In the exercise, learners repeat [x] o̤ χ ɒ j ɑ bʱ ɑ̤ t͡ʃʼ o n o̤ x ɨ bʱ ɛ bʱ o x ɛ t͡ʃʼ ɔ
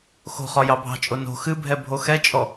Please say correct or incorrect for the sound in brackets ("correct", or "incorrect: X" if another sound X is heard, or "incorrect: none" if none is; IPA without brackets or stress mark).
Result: correct